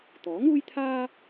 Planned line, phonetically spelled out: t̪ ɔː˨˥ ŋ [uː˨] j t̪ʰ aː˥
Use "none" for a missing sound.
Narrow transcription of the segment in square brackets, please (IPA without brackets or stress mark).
uː˥